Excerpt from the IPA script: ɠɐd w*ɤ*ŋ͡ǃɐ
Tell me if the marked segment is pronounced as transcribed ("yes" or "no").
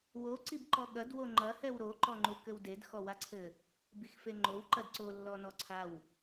no